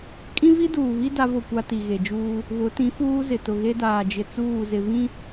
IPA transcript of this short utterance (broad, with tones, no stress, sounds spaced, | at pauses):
kʼ ĩ˦ v i˦ d uː˨ β i˦ d a˦ v ʊ˦˨ kʷ a˦ t i˨ ɣ e˨ d͡ʒ uː˦ | β ʊ˨˦ t ĩ˨˦ f uː˦ z ɪ˨ t ʊ˨ ɣ e˦ d aː˨ d͡ʒ ɪ˨ t͡s uː˦˨ z ɪ˨ v ĩ˦